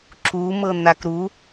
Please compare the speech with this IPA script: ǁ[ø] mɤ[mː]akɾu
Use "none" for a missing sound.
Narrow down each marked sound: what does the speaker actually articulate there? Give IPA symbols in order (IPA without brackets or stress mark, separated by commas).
u, n̪